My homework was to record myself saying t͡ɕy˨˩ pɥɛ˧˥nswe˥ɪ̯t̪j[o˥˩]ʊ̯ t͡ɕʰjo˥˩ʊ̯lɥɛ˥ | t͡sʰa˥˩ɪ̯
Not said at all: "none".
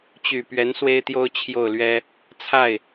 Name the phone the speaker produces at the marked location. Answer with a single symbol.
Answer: o˥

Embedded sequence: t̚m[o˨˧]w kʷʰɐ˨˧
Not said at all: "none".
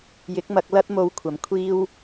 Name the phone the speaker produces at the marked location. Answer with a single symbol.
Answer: o˨˧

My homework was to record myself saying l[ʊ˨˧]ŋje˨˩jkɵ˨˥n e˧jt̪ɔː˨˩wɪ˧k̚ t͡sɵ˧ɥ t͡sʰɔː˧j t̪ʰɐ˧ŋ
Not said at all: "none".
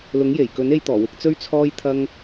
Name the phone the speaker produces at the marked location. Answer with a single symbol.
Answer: ʊ˨˥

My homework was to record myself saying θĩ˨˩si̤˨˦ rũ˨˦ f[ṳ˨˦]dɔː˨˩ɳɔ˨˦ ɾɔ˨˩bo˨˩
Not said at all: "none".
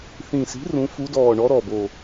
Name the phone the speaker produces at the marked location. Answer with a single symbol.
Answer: u˨˦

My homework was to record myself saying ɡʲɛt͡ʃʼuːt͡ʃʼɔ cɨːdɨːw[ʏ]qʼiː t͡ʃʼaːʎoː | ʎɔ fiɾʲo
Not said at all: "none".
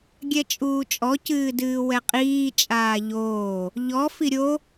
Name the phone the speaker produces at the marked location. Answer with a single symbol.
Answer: ɛ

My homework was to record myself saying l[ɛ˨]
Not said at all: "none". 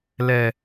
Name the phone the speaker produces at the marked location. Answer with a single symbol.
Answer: ɛ˨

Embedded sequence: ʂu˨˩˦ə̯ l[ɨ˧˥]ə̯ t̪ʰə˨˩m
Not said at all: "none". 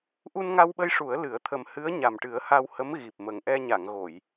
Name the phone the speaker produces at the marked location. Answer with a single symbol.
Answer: ɨ˨˩˦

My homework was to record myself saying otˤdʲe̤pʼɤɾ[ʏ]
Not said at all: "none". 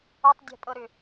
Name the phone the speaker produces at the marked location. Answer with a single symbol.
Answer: ʏ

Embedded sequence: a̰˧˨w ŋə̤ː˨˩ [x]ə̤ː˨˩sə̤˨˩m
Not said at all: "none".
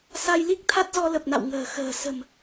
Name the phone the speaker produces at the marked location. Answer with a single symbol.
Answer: x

